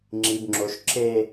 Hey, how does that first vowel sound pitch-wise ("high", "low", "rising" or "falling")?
low